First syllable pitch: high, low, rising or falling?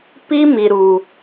high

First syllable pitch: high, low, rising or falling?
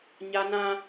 high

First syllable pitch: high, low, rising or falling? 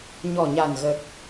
low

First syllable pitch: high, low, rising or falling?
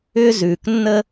high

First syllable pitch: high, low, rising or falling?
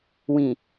low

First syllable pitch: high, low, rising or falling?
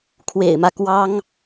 low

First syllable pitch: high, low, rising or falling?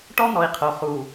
high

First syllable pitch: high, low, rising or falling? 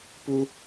high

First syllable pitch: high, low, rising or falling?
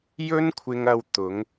high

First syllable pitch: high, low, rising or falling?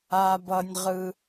high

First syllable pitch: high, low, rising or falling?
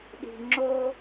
low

